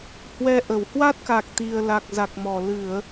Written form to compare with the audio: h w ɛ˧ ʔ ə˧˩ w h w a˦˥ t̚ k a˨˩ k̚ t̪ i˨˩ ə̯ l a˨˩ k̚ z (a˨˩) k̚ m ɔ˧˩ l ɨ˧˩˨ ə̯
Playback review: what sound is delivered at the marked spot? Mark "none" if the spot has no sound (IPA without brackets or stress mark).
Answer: a˨˩